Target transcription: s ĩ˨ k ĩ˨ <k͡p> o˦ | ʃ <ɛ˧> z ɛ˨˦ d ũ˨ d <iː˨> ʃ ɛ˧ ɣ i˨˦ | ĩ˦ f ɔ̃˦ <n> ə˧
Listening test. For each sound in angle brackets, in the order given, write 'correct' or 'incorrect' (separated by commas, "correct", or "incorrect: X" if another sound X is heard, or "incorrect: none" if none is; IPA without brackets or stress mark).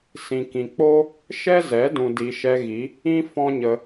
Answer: correct, incorrect: ɛ˦, incorrect: i˨, incorrect: ɲ